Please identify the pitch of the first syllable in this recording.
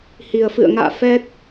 low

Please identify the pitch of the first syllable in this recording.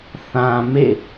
low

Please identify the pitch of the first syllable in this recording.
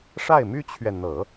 falling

